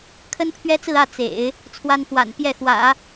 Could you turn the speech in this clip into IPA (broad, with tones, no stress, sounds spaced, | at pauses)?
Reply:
kʰ ə˥ n pʰ ɥ ɛ˥ t͡s ɹ̩˥˧ ä˥˩ t͡s ḛ˨˩˦ ɪ̯ | t͡sʰ w a˥ n f w a̰˨˩ n p j ɛ˥˩ x w ä̰˨˩˦